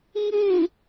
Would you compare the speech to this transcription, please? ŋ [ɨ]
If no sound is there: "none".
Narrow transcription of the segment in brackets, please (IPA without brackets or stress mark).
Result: ɨ